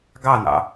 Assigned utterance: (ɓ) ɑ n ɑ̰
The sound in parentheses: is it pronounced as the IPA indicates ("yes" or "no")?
no